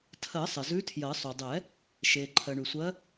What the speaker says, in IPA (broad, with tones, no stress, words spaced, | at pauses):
tʰɜ˨˩˦sˤɪ˩zʉ˨˦ tʰjɜ˨˩˦ sˤy˩dˤɛ˨˩˦ | ʃeː˩ǃʰɜ˩ɳy˩sʷɜ˨˦